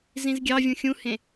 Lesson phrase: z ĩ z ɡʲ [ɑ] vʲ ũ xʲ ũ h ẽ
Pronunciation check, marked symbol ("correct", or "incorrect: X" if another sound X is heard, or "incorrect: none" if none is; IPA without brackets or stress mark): correct